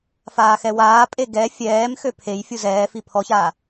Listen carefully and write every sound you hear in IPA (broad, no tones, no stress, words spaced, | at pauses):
faːxɛwaːpʼe ɡɛ fʲɛːmxø pʰej fʲuzɛːfi pʰɔçaː